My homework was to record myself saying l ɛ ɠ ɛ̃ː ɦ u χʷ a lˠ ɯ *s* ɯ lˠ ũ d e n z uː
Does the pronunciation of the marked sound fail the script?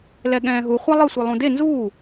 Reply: yes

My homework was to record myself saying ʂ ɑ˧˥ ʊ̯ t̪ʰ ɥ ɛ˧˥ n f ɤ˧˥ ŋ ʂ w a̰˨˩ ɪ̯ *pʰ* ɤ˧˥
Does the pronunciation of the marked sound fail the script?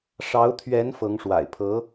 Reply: no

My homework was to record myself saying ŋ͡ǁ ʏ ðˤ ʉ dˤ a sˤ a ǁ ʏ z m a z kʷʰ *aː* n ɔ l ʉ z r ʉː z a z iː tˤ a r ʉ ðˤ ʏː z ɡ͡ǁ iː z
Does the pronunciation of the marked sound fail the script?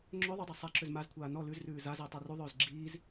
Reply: no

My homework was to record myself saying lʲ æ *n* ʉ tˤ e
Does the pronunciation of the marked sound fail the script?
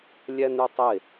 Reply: no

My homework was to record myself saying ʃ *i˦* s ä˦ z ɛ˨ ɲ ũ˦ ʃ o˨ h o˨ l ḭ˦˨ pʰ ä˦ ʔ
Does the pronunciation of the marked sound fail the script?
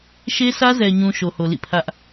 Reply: yes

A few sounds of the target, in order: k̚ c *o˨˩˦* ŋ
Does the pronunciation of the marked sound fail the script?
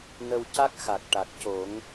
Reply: no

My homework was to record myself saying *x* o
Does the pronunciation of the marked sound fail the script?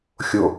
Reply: yes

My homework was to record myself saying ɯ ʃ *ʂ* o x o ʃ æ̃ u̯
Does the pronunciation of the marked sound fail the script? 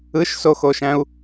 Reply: yes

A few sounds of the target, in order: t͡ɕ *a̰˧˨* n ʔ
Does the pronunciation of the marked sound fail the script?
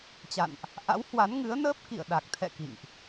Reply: no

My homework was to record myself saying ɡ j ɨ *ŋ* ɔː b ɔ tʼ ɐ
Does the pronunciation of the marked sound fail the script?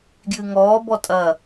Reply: no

